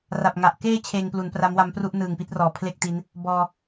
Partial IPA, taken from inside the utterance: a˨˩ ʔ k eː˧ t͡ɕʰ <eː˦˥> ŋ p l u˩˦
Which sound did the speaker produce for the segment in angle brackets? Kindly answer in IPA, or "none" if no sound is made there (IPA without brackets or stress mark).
eː˧